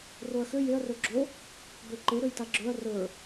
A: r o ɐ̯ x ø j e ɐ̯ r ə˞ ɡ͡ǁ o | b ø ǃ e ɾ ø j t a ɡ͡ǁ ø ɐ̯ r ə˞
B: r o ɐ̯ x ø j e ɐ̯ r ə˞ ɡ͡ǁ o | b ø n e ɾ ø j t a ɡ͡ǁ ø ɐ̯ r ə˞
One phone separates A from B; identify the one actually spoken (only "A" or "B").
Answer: A